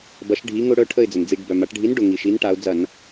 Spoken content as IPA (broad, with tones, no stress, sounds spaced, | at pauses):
b ɐ˨˥ ʃ ɖʱ i˨˥ ŋ ʊ˦ ɽ œ˦ ʈʰ ə˥˨ ɪ̯ d͡z ə˩ n d͡z i˧˩˧ ɖ b œ˩ m a˩˧ ʈ ɖʱ i˨˥ n ɖ ʊ˩ ŋ i˩ ʃ i˨˥ n ʈ a˩˧ ʊ̯ d͡z ɐ˧˩˧ n